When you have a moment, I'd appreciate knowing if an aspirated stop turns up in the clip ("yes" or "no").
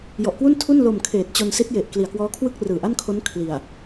yes